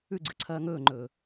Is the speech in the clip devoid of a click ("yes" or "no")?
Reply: no